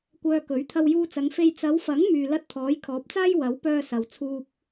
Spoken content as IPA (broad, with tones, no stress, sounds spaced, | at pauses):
kʷ œː˧ k ɵ˨˥ ɥ t̪ʰ ɐ˧ w j uː˧ t͡s ɐ˨˧ ŋ f e˧ j t͡s ɐ˨˧ w f ɐ˨˥ ŋ m yː˧ l ɐ˥ t̚ t̪ʰ ɔː˨˥ j kʰ ɔː˨˥ p̚ t͡s aː˥ j w ɐ˨˥ w p œː˧ s ɐ˨ w t͡sʰ uː˧ p̚